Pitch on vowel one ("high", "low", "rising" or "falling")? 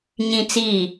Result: high